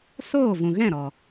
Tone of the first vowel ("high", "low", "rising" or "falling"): falling